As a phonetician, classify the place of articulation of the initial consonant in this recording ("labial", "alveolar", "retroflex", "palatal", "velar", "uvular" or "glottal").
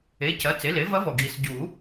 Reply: palatal